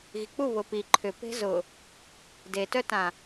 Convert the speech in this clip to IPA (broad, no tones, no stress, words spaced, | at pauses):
ɣik͡pu βʊpi ǃʰʏ pe̤zʊ | detœtã